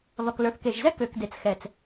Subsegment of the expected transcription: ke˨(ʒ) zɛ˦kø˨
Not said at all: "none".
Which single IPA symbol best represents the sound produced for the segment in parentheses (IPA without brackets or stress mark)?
ʒ